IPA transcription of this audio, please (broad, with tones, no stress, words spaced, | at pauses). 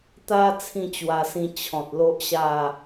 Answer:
t̪a˧ t͡sʰĩ˥˧t͡ɕwa˧sĩ˧ t͡ɕʰɔ̃˨t̚ lo˦ʔɕa˥˧